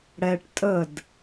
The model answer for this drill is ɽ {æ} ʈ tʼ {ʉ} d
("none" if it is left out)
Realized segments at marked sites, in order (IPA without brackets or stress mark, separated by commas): ɛ, ə